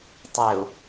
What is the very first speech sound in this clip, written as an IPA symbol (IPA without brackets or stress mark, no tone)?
tˤ